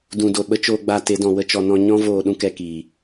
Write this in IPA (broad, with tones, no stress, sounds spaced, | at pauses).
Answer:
d ũ˨ d o˨ ɓ ə˧ t͡ʃ oː˧ ɡ͡b a˧ t e˨˦ d ɔ̃˨ w ə˦ t͡ʃ ɔ˧ n ɔ̃˦ ɲ ɔ̃˦ v oː˧ ɗ ũ˦ k ɛ˧ k iː˨